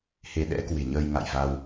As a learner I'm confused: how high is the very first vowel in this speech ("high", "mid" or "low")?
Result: mid